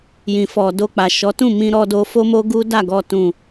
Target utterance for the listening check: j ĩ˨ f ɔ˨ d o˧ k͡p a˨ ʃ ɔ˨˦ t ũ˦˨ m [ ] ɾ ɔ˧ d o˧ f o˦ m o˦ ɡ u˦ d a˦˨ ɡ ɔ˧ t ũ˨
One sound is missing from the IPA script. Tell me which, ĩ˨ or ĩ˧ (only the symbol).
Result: ĩ˧